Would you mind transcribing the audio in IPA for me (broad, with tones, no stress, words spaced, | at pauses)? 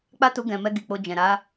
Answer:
k͡pa˦tu˧ɡɛ̃˨mɛ˧ ɡi˨k͡po˧d͡ʒɛ̃˨ ɾa˨˦